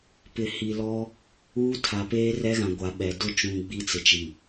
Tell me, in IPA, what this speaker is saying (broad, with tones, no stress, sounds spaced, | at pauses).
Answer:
p ɪ˨ h i˨ l ɔ˦ | uː˦ tʰ a˨ p eː˦ r ɛ˦ ɣ ã˨ ɡʷ a˨ ɓ ɛ˨ d ʊ˦˨ t͡ʃ ũ˨ ɡ͡b i˦ t͡s ɪ˨ t͡ʃ i˨